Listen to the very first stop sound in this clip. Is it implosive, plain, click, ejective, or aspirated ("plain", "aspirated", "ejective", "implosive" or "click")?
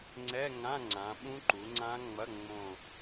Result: click